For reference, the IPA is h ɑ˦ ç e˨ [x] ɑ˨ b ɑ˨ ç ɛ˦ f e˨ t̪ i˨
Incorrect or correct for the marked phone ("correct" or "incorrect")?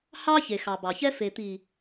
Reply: correct